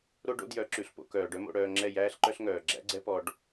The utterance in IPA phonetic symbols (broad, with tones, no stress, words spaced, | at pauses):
ɾo˦ɖo̰˦djœ˨˦ ǁʉ˨ɬpo̰˧ kœː˨ɖœ˦mo̰˧ɽœː˧ ŋ͡ǁɛ˦˨jæː˦ɬǃœ˦ɬŋœː˨ ɡ͡ǁæ̰˦ɡ͡ǀɛ˦pɔ˧ɖ